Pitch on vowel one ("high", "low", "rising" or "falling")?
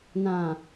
low